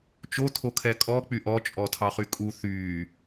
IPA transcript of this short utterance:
t͡ʃ o tʰ o kʰ ɛ kʼ ɔ k͡p y ʔ ɔ t͡ʃʼ ɔ tʰ ɑ χ y kʼ u θ y

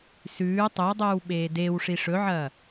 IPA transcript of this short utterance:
s ʉː tˤ ʉ w dˤ ʉː w ɓ eː d e w ʂ i ʂ ɵ ʕ ɐ

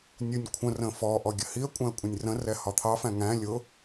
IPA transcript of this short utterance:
nʲ u nʲ kʷʰ ə̃ r ə̃ f ɔ ʔ ɔ ɡʲ ə h i ə̯ kʷʼ æ̃ ə̯ kʷʼ ə̃ nʲ r ə̃ r ɛ h ɒ t̪ʰ ɑ f æ̃ ŋ æ̃ lʲ ʊ

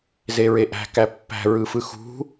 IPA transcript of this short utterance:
z e ɹ e ʔ æ̤ k æ pː æ̤ ɹ ɯ f ɯ x ṳ

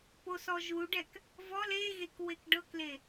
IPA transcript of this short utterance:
p o s ɔ ʒ u ɖ ɛ k | v ɔ l e ɣ e k w e k ɖ ɤ k l e

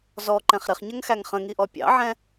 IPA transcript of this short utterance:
z ɔ ǃ ɛ̃ χ ɾ ɪ χ ɲ ə ŋ x æ ŋ χ ə̃ ŋ i ʔ ɔ pʲ ɑ̰ ʕ ɛ̃

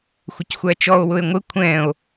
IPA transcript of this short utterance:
xʷ ɪ c xʷ æ t͡ʃ ɔ o̯ w ʊ e̯ ŋʷ ɪ kʷʰ ɛ̃ o̯

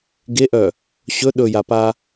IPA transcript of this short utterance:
ɡ e ʔ œ | ɕ ɵ ɗ ɵ j a p a

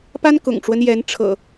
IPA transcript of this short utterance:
p a˦ n k ʊ̰˨˩ ŋ ʈ͡ʂ w ə˦ n j ɛ˨˦ n ʈ͡ʂʰ ɤ̰˨˩

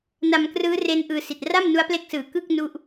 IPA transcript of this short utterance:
n a˧ m k r ɯː˦˥ r e˦˥ n ʔ ɯː˧ s i˨˩ t̚ r a˥˩ m n u˦˥ a̯ p l e˦˥ k̚ s ɯː˨˩ k ɯ˥˩ k̚ n u˥˩ ʔ

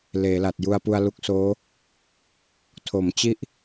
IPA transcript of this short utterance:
l eː˩˦ l a˨˩ t̚ j u˧ a̯ p u˧ a̯ l u˦˥ k̚ s oː˦˥ | tʰ o˩˦ m t͡ɕ i˥˩ ʔ

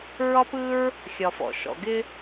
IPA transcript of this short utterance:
ɹ ɒ˥ p ɯ˥ ɹ | xʲ ɒ˩ f ɔ̰˩ ʃ ɔ̰˩ ɡ ɪ˥

